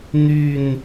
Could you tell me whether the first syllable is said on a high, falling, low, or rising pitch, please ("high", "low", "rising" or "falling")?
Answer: falling